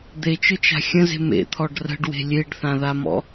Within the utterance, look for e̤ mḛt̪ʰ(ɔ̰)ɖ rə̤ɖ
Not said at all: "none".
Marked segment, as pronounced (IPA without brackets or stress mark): ɔ